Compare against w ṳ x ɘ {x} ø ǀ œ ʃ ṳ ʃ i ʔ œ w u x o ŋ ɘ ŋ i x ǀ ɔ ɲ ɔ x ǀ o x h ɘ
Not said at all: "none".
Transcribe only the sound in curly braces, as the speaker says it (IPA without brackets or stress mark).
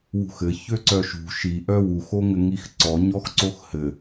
ç